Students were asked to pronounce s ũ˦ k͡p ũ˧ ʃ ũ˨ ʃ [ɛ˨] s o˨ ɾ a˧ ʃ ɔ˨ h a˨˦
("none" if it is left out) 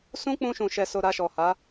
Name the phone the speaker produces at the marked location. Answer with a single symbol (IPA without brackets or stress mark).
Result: ɛ˨